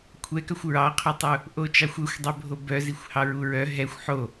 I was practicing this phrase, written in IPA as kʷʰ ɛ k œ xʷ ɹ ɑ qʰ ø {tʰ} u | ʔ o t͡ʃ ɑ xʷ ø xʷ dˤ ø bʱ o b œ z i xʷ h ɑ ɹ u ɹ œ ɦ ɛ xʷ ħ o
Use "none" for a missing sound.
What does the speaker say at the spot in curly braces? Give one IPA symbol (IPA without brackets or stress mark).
tˤ